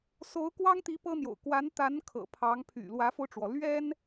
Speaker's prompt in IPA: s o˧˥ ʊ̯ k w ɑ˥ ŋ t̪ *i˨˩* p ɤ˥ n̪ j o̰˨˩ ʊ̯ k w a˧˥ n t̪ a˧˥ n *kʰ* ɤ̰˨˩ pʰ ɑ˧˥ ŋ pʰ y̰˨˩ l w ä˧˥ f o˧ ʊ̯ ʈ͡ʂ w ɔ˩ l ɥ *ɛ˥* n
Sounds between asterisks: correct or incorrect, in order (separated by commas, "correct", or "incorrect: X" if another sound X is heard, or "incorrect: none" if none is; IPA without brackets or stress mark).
incorrect: i˧˥, correct, correct